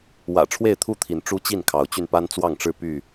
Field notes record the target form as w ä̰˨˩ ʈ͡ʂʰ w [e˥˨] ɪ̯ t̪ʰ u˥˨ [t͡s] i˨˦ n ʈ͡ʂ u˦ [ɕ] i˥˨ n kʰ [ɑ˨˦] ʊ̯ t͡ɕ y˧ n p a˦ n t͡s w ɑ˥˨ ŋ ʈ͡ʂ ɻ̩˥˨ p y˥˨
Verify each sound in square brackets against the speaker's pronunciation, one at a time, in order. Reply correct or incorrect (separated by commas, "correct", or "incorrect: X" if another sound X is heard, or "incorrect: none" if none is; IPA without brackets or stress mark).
correct, incorrect: t̪ʰ, incorrect: t͡ɕ, correct